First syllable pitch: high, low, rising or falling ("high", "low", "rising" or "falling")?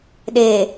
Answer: low